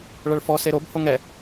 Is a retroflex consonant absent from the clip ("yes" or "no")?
no